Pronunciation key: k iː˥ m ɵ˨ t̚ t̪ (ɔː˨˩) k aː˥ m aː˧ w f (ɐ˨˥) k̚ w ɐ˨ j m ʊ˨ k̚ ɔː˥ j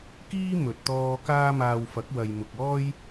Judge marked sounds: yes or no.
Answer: no, yes

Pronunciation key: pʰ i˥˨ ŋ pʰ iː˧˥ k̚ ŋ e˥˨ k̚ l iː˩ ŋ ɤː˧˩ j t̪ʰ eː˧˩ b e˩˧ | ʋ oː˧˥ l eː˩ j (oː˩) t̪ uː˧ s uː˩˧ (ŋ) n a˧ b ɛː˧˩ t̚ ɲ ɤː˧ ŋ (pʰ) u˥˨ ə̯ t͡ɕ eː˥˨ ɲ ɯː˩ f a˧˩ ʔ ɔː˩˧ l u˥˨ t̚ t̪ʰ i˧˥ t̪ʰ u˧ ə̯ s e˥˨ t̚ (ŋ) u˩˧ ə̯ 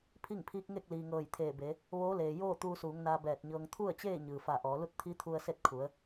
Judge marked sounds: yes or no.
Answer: no, yes, no, no

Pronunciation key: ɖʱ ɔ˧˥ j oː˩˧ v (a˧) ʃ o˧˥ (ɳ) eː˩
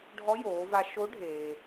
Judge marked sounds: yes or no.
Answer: yes, no

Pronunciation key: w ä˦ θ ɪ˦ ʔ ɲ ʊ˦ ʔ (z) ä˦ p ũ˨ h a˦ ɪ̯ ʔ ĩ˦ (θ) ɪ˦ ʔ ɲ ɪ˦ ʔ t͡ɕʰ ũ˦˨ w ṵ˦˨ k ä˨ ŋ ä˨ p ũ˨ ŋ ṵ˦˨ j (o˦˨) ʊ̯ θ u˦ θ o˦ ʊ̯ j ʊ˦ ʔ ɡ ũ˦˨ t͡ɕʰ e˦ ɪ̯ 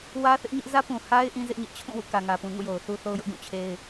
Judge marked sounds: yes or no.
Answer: yes, no, no

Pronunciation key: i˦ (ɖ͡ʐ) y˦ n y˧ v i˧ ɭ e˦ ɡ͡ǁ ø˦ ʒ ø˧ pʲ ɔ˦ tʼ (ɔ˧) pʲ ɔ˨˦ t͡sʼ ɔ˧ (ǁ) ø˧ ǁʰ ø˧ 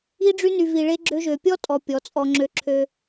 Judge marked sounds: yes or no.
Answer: yes, yes, no

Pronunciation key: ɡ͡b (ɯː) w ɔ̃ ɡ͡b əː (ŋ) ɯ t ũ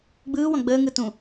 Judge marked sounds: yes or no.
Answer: yes, yes

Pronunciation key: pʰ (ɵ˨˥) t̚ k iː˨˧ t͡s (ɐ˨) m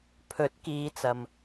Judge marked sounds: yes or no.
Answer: yes, yes

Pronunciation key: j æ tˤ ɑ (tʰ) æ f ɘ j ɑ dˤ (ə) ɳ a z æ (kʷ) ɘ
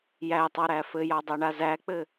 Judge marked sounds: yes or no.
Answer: no, no, no

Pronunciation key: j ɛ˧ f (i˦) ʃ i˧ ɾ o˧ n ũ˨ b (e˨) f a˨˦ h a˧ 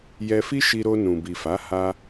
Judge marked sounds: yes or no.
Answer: yes, no

